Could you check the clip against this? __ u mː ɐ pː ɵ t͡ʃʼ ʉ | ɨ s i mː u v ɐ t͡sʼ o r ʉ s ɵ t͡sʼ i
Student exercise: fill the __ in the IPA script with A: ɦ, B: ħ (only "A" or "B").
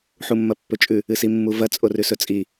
B